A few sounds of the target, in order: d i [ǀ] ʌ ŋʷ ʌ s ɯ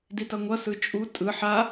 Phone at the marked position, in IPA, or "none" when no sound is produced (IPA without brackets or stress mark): t